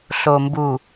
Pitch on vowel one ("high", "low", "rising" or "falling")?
low